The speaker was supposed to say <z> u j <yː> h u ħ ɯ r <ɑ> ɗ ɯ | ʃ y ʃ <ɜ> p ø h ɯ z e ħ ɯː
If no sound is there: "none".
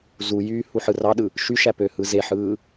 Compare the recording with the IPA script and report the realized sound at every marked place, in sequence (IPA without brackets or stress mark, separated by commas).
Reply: z, yː, ɑ, æ